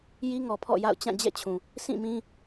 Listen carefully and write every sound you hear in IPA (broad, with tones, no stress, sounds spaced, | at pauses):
j i˦ ŋ ɔ˨ pʰ ɔ̰˦˨ j a̰˦˨ ʊ̯ t͡ɕ ã˦˨ d͡ʑ ɛ̰˦˨ t͡ɕʰ ũ˨ | sʰ ĩ˦˨ m ĩ˦